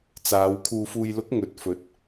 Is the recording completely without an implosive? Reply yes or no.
yes